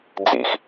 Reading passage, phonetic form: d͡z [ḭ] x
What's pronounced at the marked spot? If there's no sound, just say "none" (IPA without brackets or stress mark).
ḭ